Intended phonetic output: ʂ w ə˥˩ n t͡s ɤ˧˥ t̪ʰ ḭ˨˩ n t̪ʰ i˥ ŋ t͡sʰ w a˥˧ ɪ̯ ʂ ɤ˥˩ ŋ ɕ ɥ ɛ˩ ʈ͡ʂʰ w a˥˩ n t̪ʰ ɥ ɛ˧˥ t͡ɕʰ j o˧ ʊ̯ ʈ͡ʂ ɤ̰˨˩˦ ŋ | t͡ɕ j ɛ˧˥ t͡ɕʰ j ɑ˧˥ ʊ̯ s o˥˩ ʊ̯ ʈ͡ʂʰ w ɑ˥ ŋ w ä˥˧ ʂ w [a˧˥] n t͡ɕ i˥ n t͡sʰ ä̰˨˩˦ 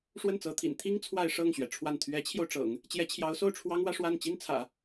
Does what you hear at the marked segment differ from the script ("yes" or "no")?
yes